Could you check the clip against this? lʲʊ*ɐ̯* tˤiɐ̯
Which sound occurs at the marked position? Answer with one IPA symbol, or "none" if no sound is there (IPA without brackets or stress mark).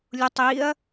none